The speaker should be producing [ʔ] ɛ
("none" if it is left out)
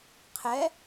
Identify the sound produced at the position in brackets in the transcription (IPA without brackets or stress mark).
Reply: qʰ